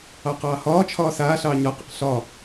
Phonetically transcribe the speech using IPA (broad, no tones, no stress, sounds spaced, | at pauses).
ɑ q ɑː h ɒː t͡ʃʰ ɒː s aː ɬ ɑː ɲ ɒ q ə̰ q ɬ ɒ